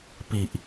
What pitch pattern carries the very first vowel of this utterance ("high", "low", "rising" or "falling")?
low